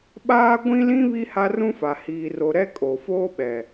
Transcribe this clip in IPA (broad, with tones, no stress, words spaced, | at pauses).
ɓaː˦ ɡʷĩ˦lĩ˦ βi˦ha˦rũ˦fa˨ hiː˨ro˨ɾɛ˦ kʼo˨foː˦ɓɛ˨